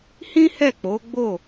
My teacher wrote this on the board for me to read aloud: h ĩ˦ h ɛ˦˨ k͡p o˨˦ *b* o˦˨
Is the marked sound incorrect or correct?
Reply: incorrect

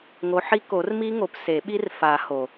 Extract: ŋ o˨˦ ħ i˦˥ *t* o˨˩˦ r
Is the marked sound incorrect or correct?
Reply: incorrect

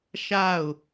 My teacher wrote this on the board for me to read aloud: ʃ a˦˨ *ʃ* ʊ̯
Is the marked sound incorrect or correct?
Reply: incorrect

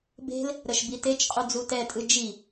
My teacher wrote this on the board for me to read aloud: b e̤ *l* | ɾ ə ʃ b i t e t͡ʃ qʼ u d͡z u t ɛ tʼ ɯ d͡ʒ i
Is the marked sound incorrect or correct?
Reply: correct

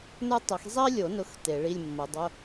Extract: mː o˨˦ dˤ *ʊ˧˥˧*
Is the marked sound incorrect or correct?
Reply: correct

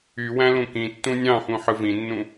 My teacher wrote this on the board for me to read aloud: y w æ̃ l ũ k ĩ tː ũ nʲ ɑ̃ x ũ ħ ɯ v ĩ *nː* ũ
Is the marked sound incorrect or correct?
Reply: correct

